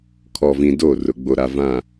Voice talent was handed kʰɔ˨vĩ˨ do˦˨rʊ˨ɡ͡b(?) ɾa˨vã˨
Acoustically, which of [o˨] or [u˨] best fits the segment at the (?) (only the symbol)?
o˨